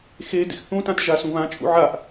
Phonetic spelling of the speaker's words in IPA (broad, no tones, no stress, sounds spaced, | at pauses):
x e d ḛ x θ ũ t ã t ʒ a s ũ β ã t͡ʃʼ ṵ ʕ a ʔ